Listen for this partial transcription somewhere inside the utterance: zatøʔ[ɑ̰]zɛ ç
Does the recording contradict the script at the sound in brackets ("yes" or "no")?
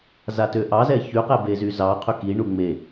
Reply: yes